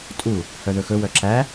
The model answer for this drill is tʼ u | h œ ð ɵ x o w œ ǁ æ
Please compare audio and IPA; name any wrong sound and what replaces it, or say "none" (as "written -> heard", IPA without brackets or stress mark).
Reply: o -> ɵ